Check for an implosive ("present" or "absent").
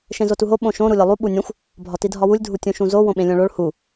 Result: present